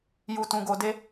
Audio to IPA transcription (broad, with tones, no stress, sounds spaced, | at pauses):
j u˧ t ũ˧ ɡ o˧ d e˦